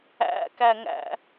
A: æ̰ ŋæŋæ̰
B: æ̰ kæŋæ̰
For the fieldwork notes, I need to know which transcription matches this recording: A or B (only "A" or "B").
B